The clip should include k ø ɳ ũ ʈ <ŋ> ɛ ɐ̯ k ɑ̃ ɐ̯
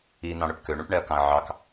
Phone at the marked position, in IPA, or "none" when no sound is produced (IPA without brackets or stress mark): ɳ